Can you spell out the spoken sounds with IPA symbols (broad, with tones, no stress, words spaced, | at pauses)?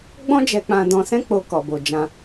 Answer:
ɡ͡bɔ̃˦d͡ʒɛ˧k͡pã˧dɔ̃˧ sɛ̃˦k͡po˧ kɔ˨bo˨d͡ʒã˧